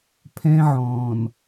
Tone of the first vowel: high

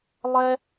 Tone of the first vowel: high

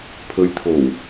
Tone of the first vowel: low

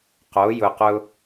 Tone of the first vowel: rising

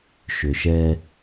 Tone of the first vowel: low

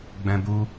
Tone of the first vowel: high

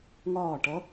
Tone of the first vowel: falling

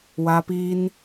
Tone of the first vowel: high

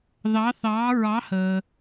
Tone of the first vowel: rising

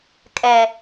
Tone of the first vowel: low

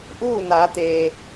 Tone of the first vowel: falling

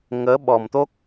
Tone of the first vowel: rising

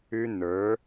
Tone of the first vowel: high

